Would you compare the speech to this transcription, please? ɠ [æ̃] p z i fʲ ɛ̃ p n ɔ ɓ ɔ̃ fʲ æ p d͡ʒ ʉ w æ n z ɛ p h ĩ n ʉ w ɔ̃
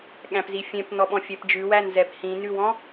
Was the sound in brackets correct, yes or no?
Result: yes